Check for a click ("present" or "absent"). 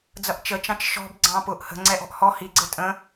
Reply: present